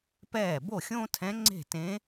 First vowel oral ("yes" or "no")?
yes